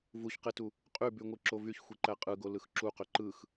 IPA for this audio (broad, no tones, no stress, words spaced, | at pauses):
vuçqetu | qʼybyŋʷɯǁo vyçxʷiǃæ qʼɯɡolɯx ǁuqø ǃɯx